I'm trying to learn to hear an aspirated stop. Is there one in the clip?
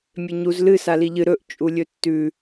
no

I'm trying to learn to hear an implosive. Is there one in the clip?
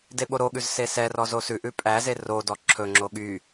yes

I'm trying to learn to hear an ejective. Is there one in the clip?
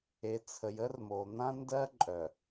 yes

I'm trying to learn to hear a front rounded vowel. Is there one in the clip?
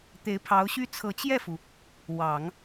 yes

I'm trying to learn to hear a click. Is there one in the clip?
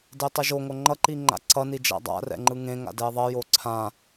yes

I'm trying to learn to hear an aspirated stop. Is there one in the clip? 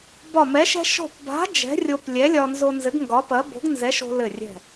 no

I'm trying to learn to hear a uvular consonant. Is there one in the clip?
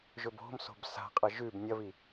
yes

